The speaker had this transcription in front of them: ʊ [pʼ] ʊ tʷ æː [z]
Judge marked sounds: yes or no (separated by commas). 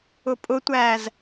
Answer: yes, yes